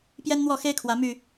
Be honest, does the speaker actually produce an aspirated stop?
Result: yes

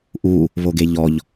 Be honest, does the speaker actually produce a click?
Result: no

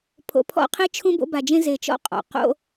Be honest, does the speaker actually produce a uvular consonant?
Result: yes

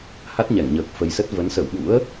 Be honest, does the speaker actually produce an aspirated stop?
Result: no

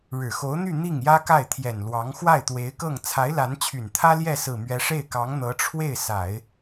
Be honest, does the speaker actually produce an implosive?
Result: no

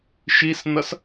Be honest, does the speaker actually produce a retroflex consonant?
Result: no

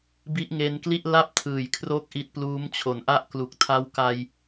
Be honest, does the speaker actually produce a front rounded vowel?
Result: no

